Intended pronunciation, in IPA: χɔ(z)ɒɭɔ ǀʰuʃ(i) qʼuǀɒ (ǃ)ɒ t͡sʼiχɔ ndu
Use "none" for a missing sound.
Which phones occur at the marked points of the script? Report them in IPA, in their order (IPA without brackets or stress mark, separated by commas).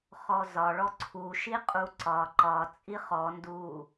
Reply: z, i, ǃ